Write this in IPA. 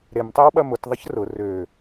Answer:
ɾemtˤewɓɐ mʊt ðˤəçrʊ rø

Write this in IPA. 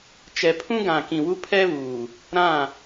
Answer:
t͡ʃɛ˨pʰũ˦ɡã˨ kĩ˨wu˦pʰɛ˦βuː˨ | ɾã˦˨

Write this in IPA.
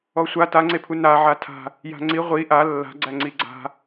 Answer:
ɔsʷa taŋ͡ǀepʰu naʕa tʰa̤ | ja̤ŋ͡ǀi ʁʷi ʔa lːa̤ɡ͡ǀæ ŋ͡ǀiɡ͡ǀa̤

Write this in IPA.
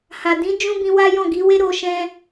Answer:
ha˨dĩ˨˦ d͡ʒũ˦bĩ˧ wa˦jɔ̃˦˨ɡi˨˦ we˦ɾo˧ʃɛ̃˧

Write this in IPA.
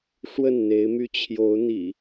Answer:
ʂwə˥˨nn̪e˨˦ɪ̯my˦ t͡ɕʰjo˨˦ʊ̯n̪ḭ˨˩

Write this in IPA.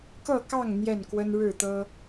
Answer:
kɤ˥˨kɑ˥˨ŋ n̪jɛ˥˨nkwə˦n ɻɻ̩˥˨t̪ɤ˦

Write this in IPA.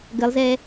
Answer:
ɡəlˠzɛ

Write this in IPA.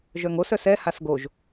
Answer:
ʒœŋos œsɛ hasɡoʒ

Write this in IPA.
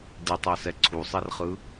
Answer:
ditˤasɛ ǀʰusˤerχɯ

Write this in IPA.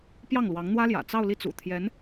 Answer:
pjɑ˥˩ŋlwɑ˧˥ŋn̪wä˥ljä̰˨˩ t͡sɑ˥˧ʊ̯ li˥˩t͡sṵ˨˩ t̪ʰjɛ˧˥n

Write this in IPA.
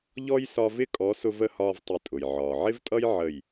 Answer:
ʎɔ˦j sɒ˧vɪ˦˨kʼɔ˨˦sʊ˧ və˦˨hɒː˧v tˤɪ˨˦tʼʊ˨j ʕɒː˨ʕɪ˦vtʼʌ˦j ʕə˦˨j

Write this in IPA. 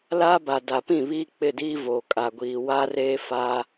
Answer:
laː˦ba˨da˨pĩ˦˨ βiː˦k͡pɪ˦˨diː˦ voː˨kʼa˨ɡʷiː˨ wa˦reː˦ faː˦

